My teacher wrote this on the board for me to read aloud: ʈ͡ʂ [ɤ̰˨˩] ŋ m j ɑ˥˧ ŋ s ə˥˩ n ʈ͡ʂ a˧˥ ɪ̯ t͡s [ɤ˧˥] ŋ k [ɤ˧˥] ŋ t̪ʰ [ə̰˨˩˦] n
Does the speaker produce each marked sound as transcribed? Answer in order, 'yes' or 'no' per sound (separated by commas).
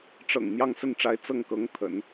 yes, no, yes, yes